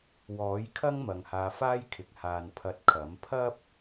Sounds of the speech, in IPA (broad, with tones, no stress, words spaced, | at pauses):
wɔː˨˥jkʰɐ˥ŋmɐ˨ŋ haː˧faː˥jkʰɪ˨˥k̚ haː˨npʰɐ˨˥t̚ kʰɐ˨˥m pʰɐ˥p̚